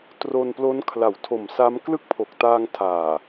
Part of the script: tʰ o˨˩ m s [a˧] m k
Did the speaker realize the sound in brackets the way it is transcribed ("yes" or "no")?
no